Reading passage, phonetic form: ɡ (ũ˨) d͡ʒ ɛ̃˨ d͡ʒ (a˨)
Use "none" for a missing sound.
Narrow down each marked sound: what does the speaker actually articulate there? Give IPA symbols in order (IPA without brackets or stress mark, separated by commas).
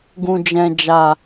ũ˨, a˨